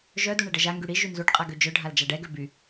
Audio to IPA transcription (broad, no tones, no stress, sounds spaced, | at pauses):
ʒ œ d u ɳ ɛ ɖ ə ʒ a ŋ ɡ y ɽ i ʒ y n z u ɖ qʼ a ɡ ø d͡ʒ œ ɖʱ a l d͡ʒ a ɖ ɛ ɡ ø b y